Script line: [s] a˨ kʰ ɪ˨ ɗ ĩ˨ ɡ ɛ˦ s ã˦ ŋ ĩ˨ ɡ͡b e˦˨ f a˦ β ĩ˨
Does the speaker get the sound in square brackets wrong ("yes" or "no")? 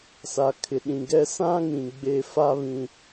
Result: no